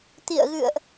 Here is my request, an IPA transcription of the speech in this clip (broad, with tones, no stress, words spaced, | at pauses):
t̪ḭ˧˨ə̯ɣɨ̰˧˨ə̯ʔ